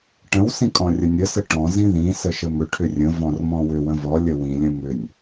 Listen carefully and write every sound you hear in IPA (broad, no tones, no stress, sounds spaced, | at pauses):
ʈ ə̃ w s ĩ kʼ ɔ̃ rʲ ə nʲ ə s ə ʈ ɔ̃ z ĩ ð ĩ s ə ʃ ə m ʏ ʈʰ ʏ rʲ ə̃ v ɔ̃ r m ɔ̃ w ʏ w ə̃ v ɔ lʲ ə w ĩ lʲ ə̃ m ʏ nʲ